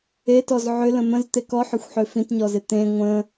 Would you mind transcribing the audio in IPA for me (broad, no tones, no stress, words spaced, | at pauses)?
etɔz ʕʏ lə̃mə̃z t̪ekɔħʏxʷ ħøfĩtɲɔzɪ t̪ẽ ŋʷə̃